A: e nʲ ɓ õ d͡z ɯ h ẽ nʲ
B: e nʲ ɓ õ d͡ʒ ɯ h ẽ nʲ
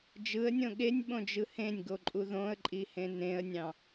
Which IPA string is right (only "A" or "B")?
B